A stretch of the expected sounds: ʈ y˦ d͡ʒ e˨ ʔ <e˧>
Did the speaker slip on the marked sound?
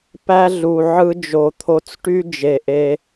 no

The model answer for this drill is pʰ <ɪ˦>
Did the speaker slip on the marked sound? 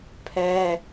yes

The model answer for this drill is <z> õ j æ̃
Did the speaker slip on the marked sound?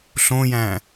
yes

